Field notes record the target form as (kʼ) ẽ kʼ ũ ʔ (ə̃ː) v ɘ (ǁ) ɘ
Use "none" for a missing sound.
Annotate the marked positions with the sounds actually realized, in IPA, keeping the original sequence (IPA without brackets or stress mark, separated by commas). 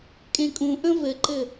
kʼ, ə̃, ǃ